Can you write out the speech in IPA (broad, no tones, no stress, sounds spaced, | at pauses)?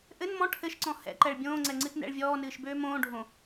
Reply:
ʔ ɘ n m ɔ̃ ʈʰ ɘ ʃ ǀ ɔ̃ h ɛ̰ ǃ ɛ ɭ bʲ õː ŋ͡ǀ ɛ ŋ͡ǀ ɨ t n ɛ̰ ɭ vʲ ɔː n ɨː ʃ b øː m õː ɖʱ õ